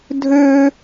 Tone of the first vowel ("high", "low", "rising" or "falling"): high